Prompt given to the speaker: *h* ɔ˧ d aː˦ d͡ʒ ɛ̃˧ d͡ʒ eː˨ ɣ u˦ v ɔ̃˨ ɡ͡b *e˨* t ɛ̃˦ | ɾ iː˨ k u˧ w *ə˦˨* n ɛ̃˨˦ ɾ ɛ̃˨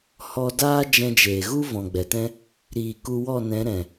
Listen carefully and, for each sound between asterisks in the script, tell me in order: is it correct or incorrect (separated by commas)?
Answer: correct, incorrect, incorrect